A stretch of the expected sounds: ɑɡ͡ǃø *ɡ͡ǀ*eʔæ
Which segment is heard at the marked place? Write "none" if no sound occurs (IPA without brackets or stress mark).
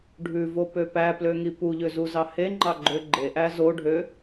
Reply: ɡ͡ǃ